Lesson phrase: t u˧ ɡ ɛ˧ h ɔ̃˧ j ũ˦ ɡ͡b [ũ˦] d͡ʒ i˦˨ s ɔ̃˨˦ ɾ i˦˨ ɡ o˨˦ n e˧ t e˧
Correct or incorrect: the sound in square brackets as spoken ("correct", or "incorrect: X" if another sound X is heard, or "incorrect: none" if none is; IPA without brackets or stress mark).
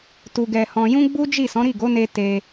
incorrect: u˦